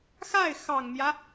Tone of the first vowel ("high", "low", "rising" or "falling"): falling